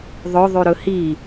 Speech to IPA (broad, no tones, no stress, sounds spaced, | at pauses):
ðˤ ɵ ðˤ ʉ ɾ ɵ h i